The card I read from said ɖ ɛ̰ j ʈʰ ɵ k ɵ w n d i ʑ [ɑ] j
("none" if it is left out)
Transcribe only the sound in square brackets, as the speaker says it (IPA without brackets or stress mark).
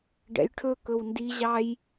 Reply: ɑ